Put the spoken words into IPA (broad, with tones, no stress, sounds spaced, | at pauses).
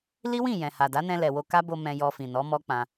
l i˦ w ĩ˦˨ j ɛ̃˨ h a˨ d a˨˦ n ɛ̃˧ l ɛ˨ w o˧ k a˦ b o˧ m ɛ̃˧ j ɔ˧ f ĩ˨ n ɔ˨˦ m ɔ˦ k͡p ã˧